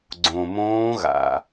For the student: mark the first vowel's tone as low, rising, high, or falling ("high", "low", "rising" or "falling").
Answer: low